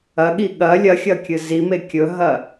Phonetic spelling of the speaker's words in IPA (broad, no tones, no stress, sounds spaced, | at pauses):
ɐ ɠ i ɠ ɐ lʲ ɐ xʲ ɐ kʲ ɨ z i m e kʲ ɵ ɦ ɐ